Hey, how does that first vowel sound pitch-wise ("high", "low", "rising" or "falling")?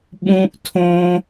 high